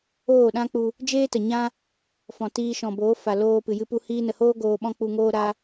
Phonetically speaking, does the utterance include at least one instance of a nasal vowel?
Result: yes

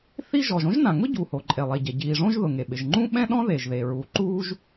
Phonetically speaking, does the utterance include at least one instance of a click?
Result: yes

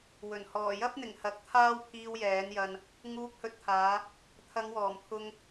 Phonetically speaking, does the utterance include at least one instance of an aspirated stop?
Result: yes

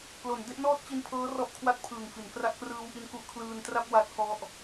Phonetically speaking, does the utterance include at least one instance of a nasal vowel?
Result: no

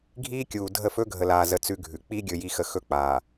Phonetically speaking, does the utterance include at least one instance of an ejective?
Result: no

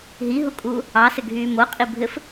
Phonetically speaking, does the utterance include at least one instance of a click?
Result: no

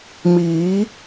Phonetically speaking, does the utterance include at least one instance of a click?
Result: no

